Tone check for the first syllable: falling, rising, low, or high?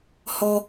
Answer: high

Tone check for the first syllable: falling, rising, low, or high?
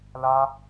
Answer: high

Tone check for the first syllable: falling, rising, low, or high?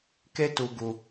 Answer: high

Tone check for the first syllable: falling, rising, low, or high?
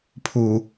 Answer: low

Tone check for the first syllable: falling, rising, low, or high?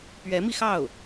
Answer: rising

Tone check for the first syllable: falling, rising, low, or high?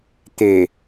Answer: low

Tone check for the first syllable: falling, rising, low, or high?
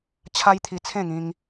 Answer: high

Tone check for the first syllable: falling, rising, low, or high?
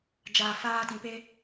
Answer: low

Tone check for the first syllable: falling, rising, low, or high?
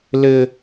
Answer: high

